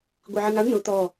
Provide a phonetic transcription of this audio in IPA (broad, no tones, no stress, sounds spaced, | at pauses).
ɡʷ i ʕ ɪ ŋ a ɳ n ʊ t̪ ɔ